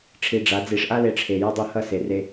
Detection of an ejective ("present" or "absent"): absent